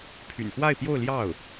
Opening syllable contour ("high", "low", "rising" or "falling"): low